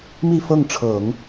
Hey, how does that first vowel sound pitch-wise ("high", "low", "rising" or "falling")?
falling